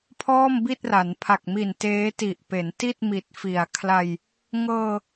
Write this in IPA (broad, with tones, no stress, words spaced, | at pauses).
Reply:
pʰɔː˥˩mbi˥˩t̚ra˩˦n pʰa˨˩k̚mi˨˩n teː˦˥ti˨˩ʔpe˩˦nti˥˩t̚ mi˨˩t̚fi˩˦a̯kʰla˧j | ŋɤː˧